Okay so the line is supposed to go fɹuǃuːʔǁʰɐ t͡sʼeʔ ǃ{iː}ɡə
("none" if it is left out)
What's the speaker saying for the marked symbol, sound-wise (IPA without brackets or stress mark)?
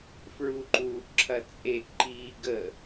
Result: iː